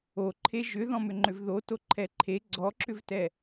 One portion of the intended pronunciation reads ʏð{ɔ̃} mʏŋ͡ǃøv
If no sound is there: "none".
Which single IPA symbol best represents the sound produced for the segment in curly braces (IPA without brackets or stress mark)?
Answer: ɔ̃